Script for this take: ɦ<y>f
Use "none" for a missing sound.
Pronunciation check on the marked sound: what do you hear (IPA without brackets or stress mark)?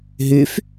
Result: y